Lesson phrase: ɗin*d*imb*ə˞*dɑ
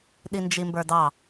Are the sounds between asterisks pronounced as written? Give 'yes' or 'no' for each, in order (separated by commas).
no, yes